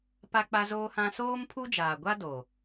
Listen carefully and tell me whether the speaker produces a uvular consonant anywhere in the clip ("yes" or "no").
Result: no